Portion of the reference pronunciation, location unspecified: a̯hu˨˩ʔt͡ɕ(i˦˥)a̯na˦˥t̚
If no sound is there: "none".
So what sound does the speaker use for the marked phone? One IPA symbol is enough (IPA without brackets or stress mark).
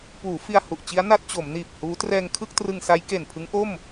i˦˥